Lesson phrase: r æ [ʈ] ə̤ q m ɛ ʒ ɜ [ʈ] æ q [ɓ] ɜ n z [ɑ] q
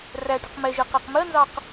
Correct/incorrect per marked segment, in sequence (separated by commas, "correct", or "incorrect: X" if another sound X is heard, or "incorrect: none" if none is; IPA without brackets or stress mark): correct, incorrect: q, incorrect: m, correct